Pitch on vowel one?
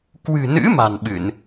low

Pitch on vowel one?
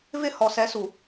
falling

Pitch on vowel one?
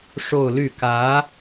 falling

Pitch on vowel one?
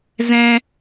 high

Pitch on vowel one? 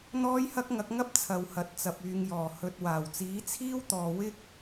high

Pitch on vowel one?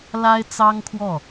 high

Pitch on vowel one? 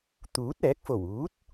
rising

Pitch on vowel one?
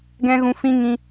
high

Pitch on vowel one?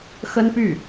high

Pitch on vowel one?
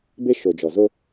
high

